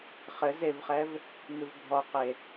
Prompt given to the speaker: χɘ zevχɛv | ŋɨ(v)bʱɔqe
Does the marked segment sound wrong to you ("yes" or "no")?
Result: no